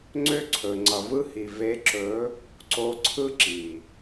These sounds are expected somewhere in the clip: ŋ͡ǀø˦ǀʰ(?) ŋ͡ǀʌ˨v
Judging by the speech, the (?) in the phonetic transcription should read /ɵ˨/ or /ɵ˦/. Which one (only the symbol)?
ɵ˨